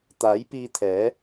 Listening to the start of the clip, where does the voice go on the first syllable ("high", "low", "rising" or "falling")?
rising